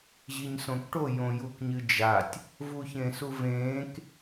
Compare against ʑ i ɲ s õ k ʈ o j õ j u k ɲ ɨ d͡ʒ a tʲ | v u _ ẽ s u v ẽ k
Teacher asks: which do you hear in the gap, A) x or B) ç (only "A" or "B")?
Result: B